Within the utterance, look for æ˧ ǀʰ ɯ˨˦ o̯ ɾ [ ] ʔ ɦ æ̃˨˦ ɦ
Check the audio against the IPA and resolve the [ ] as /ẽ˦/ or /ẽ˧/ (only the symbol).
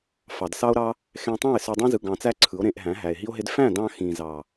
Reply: ẽ˧